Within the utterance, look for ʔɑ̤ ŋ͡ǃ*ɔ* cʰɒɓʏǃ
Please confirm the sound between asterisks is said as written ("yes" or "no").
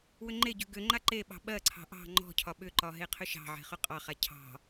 no